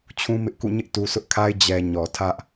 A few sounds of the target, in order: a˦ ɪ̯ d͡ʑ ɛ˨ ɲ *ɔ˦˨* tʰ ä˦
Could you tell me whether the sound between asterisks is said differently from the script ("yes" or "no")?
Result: yes